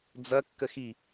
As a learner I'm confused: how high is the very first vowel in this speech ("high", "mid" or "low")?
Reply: low